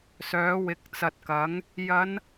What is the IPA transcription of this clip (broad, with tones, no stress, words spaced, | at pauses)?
sœː˨˥wɪ˨˥k̚t͡sɐ˨t̚kɐ˨˥ŋ | jɐ˨˧n